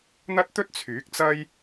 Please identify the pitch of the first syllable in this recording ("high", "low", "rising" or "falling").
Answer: high